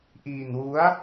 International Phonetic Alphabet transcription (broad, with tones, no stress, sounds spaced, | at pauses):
ʔ iː˧ n w u˦˥ a̯